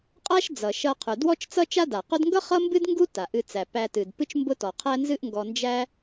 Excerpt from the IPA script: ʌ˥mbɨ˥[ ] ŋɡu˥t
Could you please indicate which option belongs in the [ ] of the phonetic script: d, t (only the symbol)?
d